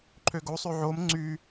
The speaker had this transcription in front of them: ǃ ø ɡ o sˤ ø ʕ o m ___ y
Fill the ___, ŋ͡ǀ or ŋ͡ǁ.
ŋ͡ǀ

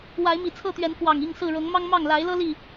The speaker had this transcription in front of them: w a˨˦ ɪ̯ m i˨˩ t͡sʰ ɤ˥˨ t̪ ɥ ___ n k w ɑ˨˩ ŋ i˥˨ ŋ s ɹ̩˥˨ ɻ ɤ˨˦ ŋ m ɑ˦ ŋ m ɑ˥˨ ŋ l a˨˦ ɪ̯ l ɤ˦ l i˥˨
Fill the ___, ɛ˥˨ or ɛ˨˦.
ɛ˨˦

